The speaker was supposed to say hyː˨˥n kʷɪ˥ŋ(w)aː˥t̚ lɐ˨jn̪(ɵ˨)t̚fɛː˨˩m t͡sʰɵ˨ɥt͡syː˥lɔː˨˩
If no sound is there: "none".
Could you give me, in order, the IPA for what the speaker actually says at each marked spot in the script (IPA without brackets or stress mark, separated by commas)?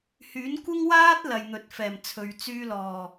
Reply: w, ɵ˨